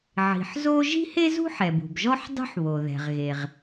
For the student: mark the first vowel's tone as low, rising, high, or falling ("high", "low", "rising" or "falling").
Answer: low